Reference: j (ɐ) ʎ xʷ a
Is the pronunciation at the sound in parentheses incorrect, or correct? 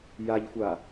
incorrect